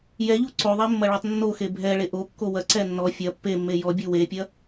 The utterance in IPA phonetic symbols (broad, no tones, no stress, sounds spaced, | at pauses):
j ɛ ʎ u ǀ o ðˤ e mː ɐ ɭ ɔ tˤ nː o x e bʱ ɛ ɭ e ʔ o kː o w ɐ ǀ ɛ nː ɔ fʲ ɐ pː e mː e j ɔ bʲ u w e pʲ ɐ